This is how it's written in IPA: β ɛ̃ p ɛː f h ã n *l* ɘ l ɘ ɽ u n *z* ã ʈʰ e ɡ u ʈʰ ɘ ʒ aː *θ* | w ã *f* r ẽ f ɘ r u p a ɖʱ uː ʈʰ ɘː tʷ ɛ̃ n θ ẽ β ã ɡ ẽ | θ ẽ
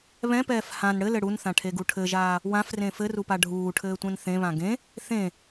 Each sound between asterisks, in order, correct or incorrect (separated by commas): incorrect, incorrect, incorrect, correct